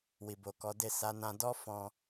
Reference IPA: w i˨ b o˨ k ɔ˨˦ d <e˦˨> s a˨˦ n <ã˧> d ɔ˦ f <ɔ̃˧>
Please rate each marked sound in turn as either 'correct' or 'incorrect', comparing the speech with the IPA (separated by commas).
correct, correct, correct